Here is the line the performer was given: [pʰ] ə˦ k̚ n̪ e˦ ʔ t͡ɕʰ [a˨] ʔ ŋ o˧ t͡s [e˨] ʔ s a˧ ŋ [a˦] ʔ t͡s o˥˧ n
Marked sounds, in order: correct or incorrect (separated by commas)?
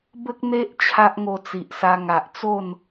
incorrect, incorrect, incorrect, incorrect